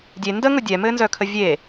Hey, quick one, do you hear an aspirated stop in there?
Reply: yes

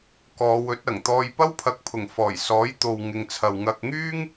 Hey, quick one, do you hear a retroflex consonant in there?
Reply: no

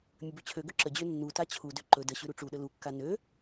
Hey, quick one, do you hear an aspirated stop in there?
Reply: yes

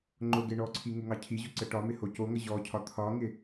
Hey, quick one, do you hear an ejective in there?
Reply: no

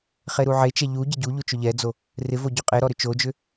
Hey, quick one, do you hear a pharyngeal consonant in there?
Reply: yes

